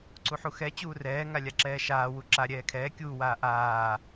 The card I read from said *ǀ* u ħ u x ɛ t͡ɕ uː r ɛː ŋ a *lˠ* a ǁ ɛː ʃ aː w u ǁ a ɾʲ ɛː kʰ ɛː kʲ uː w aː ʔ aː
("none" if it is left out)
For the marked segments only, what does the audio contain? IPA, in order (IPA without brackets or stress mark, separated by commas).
ǀ, lʲ